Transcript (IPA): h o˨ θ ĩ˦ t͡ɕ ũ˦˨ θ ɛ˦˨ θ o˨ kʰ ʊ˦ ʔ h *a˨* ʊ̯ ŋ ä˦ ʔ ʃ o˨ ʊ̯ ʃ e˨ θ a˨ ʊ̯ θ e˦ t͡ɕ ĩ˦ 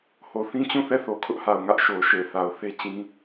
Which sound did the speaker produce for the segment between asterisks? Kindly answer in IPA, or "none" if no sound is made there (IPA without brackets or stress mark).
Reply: a˨